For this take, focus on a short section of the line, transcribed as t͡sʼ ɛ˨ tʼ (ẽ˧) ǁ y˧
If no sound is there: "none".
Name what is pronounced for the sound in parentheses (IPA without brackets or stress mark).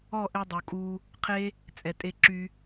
e˧